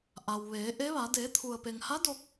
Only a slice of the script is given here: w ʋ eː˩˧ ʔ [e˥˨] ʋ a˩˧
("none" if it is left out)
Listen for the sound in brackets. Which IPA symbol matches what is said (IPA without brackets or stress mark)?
e˧˥